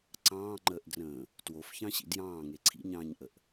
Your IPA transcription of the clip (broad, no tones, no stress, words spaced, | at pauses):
ǀɑ̃ːŋ͡ǃəːʔdrə̃ː | twofçɑ̃ɕḭ djɑ̃ːŋe ǀʰḭɲɑ̃ːɲʔəʔ